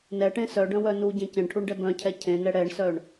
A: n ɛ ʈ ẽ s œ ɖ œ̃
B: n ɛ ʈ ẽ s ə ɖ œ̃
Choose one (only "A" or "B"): A